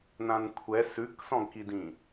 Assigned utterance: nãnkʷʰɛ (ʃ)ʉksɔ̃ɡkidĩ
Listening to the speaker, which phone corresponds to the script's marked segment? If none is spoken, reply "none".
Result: s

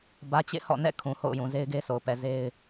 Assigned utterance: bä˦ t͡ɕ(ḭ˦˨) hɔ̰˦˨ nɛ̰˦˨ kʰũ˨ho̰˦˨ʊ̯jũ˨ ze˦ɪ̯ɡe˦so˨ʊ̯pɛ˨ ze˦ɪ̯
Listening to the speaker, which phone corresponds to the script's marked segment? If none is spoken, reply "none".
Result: ḛ˦˨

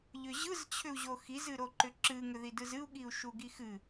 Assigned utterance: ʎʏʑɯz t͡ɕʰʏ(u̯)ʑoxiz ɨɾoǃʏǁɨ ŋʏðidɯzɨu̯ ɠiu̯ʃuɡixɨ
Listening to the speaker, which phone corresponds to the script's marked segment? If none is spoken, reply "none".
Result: u̯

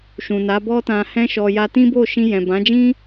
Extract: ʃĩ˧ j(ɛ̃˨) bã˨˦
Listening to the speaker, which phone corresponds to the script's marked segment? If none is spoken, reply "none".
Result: ɛ̃˨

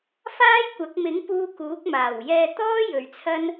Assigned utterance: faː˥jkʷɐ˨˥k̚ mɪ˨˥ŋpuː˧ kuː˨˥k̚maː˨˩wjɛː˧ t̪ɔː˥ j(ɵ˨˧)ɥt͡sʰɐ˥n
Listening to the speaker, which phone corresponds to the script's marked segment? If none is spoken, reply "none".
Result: ɵ˨˧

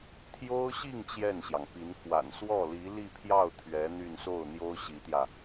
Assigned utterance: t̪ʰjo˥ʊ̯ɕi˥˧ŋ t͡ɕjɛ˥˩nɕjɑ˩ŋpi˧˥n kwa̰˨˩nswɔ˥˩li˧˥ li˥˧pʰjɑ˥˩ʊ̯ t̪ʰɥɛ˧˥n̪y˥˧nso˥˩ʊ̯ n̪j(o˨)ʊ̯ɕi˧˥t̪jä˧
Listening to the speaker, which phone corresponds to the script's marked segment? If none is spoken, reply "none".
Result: o˥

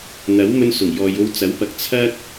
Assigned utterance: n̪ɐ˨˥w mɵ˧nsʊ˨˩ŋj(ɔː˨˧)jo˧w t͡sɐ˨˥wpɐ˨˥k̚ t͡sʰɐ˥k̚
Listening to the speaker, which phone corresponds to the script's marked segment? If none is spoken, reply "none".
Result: ɔː˨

